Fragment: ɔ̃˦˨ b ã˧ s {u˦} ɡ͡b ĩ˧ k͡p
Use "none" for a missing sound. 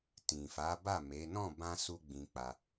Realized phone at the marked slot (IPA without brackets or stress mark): u˦